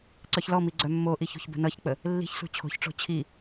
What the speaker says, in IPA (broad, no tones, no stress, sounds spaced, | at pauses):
ǀ œ ç l ɔ m i ɡ͡ǀ œ mː o ʔ i ç o̤ ç b ə̤ n ʌ ç k͡p ə | lː i̤ ç s ṳ t͡ɕʰ o̤ ç ʈ͡ʂ o̤ t͡ɕʰ i